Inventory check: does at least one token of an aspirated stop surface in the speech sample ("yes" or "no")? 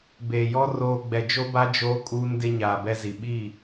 no